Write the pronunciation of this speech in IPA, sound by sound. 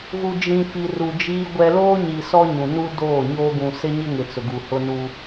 ɣ u˨ d͡ʒ ĩ˨ f i˨ r u˨ d͡ʒ iː˦ ɡʷ ɛ˦ l oː˦ ɲ i˨ s ɔ˦ ɲ ũ˨ n u˦ d oː˦˨ ɲ oː˦ ɡ ũ˨ s ɪ˦ ɲ ɪ˦ ŋ ɪ˨ t͡s ʊ˨ ɡ u˨ h ʊ˦ n u˦

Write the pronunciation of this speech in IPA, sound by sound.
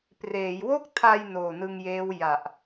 p r eː˩˦ j w o˥˩ k̚ tʰ a˧ j n oː˨˩ n ɯ˧ ŋ j eː˦˥ w j a˨˩ ʔ

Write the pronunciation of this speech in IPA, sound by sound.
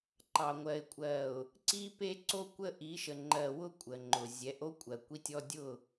ǃ ɑ˨ ŋʷ ɜ˨ ɪ̯ kʷʼ ɜ˨ ʊ̯ | ǀ i˦ p e˦ ǀ o˦ kʷ ə˦ ʔ i˨˦ ʃ ə˨ ŋ͡ǃ ɜ˨ w ʊ˦ kʷʼ ə˨ ŋ͡ǃ ʊ˨ zʲ ɛ˨˦ ʔ o˦ kʷʼ ɜ˨ kʷ i˦ tʲ ɔ˦ dʲ ʊ˦˨

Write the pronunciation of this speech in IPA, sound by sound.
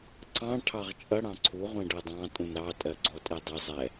ǀ ɑ̃ ʈʰ ɑ ʁ t͡ʃʼ ʌ ɽ ɑ̃ ǀʰ u ʁʷ ɛ̃ ɖ ɜ dˤ ɑ̃ tʼ ũ n ɾ ɑ tʼ ɜ ɡ͡ǀ ɔ tʼ ɛ dˤ ɪ zˤ ɛ

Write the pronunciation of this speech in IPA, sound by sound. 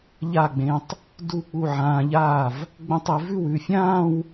ʎ a˥˩ ɡ͡b ẽ˧ tˤ | d u˥˩ k͡p u˥˩ ʕ ãː˧ ʎ aː˥˩ v | ɡ͡b ə̃˥˧ tˤ e˨˥ v ʉ˥˩ w ʉ˩˧˩ fʲ ãː˥˧ w

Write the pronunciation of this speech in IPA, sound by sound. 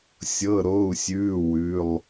sʲ ɤ˧˥˧ ɾ o˧˥˧ u̯ sʲ ʉː˧˥˧ w ʉ˧˥˧ lˠ

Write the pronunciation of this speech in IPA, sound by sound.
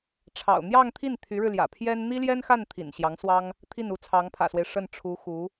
ʈ͡ʂʰ ɑ̰˨˩ ʊ̯ n̪ j ɑ˥˧ ŋ t̪ʰ i˥˩ n t̪ʰ y˧˥ ɻ ɻ̩˧ l j ä̰˨˩ pʰ j ɛ˥ n n̪ i˥ l j ɛ˥ n x a˥˩ n t̪ʰ ḭ˨˩ n ɕ j ɑ˧˥ ŋ s w ɑ˥ ŋ | t̪ʰ i˥˩ n u˧˥ t͡sʰ ɑ˧˥ ŋ pʰ ä̰˨˩ s w e˦ ɪ̯ ʂ ə˥˩ n ʈ͡ʂʰ u˧˥ x u˧˥

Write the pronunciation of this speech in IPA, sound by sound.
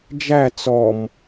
d͡ʒ æ t͡s ɔ m

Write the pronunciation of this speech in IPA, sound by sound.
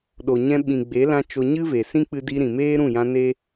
ɗ o˨ ɲ ɛ̃˧ ɓ ĩ˨ ɡ͡b e˨˦ l ã˧ t͡ʃ o˧ ɲ ɨ˦ v e˨ s ĩ˦ k͡p ɨ˧ d i˧ ɾ ĩ˨ m eː˦ ɾ ũ˦˨ j ã˧ n e˦

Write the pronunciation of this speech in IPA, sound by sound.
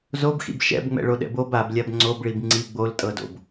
z o b x ḭ b ʃ ɛ̰ b ŋ͡m ɛ̰ ɭ o ɗ ɛ̰ b o b a b lʲ a b ŋ͡ǀ o b ɭ i b ŋ͡ǀ i ɡ͡b o l tʼ ɤ d o̰ b

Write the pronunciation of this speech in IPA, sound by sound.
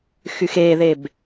x y x e ð e b

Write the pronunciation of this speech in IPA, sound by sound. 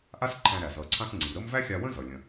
ʔ a˥ s ǃʰ æ̃˧ ɾ æ˩ z ʌ˩ ǀʰ ã˧ s ŋ͡ǀ i˩ ɾ ə˥ m v æ˥ xʲ a˧ w ə̃˥ z ʌ˩ lʲ ə̃˩

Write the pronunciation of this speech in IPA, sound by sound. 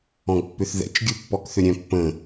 ɔ̃ ɡ pː ʏ θ ð ɛ̰ t͡ʃ ɡʲ u pː ɔ k θ ʏ ɾʲ œ̃ pː ə̃

